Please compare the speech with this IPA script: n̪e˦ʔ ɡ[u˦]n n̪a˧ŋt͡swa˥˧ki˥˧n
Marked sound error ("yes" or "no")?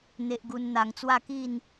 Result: no